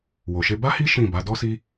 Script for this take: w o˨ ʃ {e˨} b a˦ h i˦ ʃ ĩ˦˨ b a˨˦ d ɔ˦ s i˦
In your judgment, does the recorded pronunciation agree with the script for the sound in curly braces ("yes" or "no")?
no